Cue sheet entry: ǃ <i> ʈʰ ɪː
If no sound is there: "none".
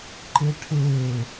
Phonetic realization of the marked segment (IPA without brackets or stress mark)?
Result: ɪ